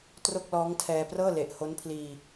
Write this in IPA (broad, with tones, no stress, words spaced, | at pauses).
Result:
tro˥˩k̚lɔː˦˥ŋtʰɛː˧ prɤː˥˩le˨˩ʔho˦˥n pʰliː˧